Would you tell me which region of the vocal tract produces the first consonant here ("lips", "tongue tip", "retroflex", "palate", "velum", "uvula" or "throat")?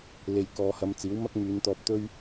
tongue tip